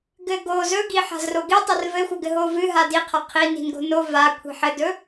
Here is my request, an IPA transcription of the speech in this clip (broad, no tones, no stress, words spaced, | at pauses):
ɡɘɡo zɵɡi ħa̤zroɡi tˤɵrvɘxʷœ ɡɘɦovɨ ɦadiqʰa qʰini̤nɡo̤ no vakʷʰi̤ ħɘdɵ